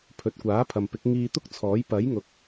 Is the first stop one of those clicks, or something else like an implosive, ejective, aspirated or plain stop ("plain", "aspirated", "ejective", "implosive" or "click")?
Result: aspirated